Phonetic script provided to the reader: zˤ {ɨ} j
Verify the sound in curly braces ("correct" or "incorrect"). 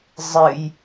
correct